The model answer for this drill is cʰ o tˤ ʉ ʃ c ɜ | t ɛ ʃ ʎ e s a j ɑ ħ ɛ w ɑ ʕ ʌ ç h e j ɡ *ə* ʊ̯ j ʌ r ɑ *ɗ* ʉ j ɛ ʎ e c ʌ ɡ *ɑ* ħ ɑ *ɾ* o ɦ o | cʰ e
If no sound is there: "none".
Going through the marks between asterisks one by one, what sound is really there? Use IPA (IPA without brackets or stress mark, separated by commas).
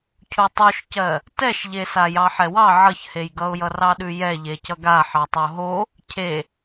ʌ, ɗ, a, tˤ